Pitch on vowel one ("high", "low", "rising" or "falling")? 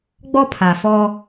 high